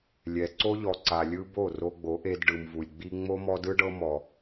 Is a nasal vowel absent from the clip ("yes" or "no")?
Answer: yes